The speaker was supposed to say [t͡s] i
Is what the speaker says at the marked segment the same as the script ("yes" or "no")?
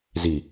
no